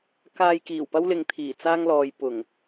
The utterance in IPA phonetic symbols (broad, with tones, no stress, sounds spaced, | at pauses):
k aː˧ j k iː˨˩ w p ɐ˥ w l ɪ˨ ŋ t̪ʰ iː˨˩ t͡s aː˥ ŋ l ɔː˨ j p ʊ˨˩ ŋ